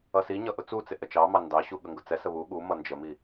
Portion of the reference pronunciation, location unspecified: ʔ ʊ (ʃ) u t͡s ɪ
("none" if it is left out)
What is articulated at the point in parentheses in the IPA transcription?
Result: t͡s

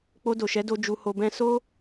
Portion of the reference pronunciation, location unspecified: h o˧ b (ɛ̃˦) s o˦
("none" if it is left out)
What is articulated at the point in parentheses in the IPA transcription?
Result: ɛ̃˦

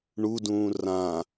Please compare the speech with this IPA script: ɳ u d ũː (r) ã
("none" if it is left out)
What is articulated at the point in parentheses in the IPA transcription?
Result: r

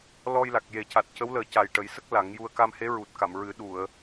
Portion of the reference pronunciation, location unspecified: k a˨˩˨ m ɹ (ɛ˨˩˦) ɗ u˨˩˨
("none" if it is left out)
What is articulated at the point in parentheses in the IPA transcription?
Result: ɨ˨˩˦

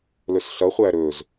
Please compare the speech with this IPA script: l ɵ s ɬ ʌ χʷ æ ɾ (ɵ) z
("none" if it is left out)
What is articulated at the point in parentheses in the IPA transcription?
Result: ɵ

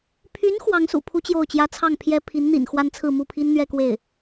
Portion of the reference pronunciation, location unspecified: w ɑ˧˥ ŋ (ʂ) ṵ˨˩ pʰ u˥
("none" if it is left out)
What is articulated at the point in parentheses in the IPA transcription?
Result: s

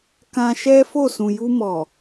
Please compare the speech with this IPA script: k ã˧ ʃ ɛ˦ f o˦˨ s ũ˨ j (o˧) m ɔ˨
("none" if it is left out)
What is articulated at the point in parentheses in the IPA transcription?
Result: u˧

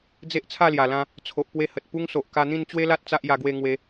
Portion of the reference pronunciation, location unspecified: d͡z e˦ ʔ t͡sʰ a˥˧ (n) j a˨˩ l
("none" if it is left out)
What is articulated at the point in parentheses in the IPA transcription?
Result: l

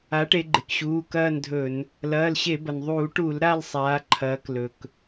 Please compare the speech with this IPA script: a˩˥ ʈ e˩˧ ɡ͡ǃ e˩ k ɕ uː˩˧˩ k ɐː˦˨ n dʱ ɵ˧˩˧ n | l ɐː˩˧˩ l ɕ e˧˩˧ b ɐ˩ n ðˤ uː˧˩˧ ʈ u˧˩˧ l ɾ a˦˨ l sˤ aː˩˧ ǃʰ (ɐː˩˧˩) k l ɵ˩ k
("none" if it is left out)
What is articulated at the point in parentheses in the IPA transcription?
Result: ɐː˩˧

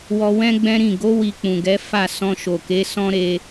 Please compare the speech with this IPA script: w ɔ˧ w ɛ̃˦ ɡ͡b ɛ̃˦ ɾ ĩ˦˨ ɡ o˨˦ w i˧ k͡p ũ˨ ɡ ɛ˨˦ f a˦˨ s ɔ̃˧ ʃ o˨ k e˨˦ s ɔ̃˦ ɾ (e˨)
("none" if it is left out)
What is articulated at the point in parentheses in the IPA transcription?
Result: e˧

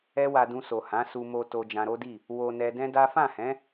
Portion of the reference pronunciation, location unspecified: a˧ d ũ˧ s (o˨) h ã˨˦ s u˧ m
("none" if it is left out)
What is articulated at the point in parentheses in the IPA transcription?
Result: o˨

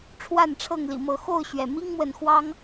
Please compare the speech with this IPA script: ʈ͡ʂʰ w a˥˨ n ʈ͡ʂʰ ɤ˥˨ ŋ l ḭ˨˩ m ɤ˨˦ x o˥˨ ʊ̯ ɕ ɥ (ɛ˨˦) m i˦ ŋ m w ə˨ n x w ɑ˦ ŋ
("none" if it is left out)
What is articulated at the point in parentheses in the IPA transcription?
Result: ɛ˩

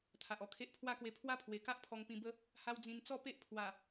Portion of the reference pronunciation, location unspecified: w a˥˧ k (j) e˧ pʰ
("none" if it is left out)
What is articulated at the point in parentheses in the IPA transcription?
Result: w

